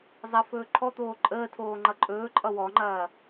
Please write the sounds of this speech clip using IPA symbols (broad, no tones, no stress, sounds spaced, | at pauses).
zˤ ɐ f ɵː ǃʰ ɔ t̪ oː ǃʼ əː tʰ oː ŋ͡ǃ ʌ ǃʼ ɵː ǃʼ ʌ w ɔ ŋ͡ǃ ɐː